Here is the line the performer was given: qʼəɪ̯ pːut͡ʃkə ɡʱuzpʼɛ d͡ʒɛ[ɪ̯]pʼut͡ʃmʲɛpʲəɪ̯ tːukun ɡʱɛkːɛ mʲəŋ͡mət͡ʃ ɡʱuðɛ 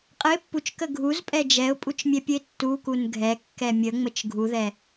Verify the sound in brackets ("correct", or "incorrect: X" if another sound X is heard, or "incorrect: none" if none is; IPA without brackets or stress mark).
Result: incorrect: ʊ̯